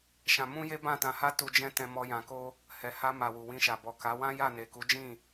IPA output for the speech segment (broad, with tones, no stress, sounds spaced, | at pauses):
ʃ ã˧ m ũ˦ j e˦ b ã˦˨ t ã˧ h a˦ t u˧ d͡ʒ ɛ̃˦ t ɛ̃˧ m ɔ˧ j ã˨ k o˧ | h ɛ˨ h a˧ m a˨ w u˨ w ĩ˧ ʃ a˨ b ɔ˨ k a˨˦ w ã˦ j a˦˨ n e˨ k u˨˦ d͡ʒ ĩ˦˨